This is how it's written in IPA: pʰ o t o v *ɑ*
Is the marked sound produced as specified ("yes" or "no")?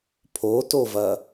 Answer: no